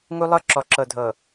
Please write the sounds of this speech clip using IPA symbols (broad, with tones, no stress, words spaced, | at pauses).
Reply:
ŋu˦lˠɤ˦ǁɔ˨ ǁɤ˨dʱɤ˨